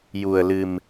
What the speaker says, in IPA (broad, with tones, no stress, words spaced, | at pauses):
ju˧ə̯lɨ˧m